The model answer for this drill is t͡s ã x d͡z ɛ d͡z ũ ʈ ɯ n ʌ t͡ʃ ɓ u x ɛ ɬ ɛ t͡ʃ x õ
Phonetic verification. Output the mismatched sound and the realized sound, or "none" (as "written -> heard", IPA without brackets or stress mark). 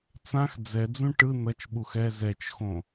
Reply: ɬ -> z